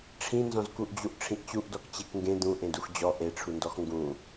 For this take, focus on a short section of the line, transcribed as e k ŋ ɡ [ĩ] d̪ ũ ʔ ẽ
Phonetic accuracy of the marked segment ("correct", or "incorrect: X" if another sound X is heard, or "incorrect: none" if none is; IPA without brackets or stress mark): incorrect: ẽ